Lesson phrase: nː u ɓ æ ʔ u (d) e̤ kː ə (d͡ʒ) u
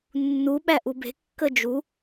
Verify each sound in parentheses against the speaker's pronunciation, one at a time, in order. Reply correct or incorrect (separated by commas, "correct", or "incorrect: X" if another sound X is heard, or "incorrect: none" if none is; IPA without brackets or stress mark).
incorrect: b, correct